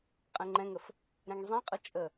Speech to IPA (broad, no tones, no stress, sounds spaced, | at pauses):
qʼ ɛ̃ ŋ͡ǃ ɛ̃ ŋ ə f | ɾ ɛ̃ ŋ zˤ ĩ qʼ ʌ t͡ʃʼ ə